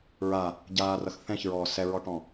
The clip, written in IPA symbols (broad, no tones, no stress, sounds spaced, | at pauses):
ɹ a | ɟ aː r ʌ x θ ɛ̃ ç ɹ ɔː s ɛ ɹ ɔ ʈ ɔ̃